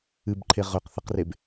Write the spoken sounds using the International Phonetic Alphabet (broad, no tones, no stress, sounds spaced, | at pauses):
ɨ b ǃʰ e ʁ ɵ q θ ɐ q r e b